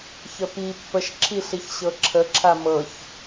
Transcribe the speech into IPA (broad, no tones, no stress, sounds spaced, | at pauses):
ç ə p i pː ə ʃ ǁʰ i ɬ i ç ɕ ɤ ǁʰ ə ǁʰ a m ɤ ç